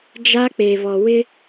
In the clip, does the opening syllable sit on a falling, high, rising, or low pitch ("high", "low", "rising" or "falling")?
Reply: high